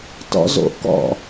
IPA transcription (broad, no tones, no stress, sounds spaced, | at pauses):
t ɔ̰ z o̰ k ɔ̰